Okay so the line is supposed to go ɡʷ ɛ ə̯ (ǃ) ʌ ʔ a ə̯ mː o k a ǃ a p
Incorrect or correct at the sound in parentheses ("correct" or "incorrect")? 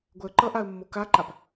correct